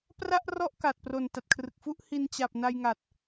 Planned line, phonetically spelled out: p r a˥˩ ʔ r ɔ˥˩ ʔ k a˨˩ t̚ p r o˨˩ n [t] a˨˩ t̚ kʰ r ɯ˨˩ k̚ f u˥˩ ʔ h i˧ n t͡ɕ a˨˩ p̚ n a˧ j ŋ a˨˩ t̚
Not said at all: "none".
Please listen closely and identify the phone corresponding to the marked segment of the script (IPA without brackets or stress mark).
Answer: t